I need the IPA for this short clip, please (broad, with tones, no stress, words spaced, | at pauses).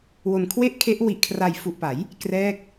wo˨˩nkʰwe˥˩ʔkʰe˦˥ʔ wi˨˩ʔkʰra˨˩jfu˨˩ʔpa˩˦j | krɛː˥˩k̚